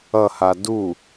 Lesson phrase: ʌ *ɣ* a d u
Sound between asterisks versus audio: incorrect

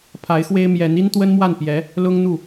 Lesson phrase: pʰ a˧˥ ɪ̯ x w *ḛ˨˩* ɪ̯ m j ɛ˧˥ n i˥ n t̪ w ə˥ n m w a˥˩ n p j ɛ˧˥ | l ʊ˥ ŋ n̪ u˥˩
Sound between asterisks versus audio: incorrect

